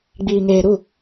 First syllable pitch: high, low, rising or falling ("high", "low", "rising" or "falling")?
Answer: low